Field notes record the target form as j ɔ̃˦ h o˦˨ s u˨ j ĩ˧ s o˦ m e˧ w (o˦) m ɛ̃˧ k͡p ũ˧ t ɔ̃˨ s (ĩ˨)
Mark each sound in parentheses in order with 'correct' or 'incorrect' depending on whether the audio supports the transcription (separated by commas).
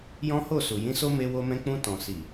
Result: incorrect, incorrect